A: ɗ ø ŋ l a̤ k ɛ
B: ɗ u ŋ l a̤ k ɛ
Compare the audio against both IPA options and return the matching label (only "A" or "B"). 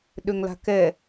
A